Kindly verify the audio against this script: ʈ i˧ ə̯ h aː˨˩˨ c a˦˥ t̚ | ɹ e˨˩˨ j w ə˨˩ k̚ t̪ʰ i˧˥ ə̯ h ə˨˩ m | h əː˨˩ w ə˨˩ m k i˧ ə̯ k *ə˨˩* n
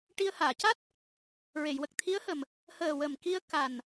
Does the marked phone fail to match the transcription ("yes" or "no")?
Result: yes